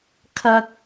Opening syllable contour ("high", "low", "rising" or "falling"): high